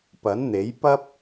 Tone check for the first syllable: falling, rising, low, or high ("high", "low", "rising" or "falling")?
rising